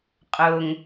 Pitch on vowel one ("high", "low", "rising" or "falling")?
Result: low